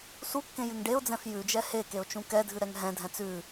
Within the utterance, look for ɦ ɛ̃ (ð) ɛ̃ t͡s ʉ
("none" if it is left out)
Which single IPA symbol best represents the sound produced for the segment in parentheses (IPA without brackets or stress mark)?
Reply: dʱ